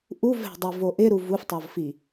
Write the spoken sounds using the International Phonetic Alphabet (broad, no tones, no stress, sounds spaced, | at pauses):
ʔ u v ɛ̤ dˤ i v o ʔ ɪ ɾ u v u f tˤ o v f i